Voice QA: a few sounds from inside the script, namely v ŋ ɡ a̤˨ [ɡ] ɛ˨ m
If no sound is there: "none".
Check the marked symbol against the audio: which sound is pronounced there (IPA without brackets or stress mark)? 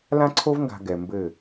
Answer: ɡ